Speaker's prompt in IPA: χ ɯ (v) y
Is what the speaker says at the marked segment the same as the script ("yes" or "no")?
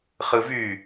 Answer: yes